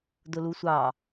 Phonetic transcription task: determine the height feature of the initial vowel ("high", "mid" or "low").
high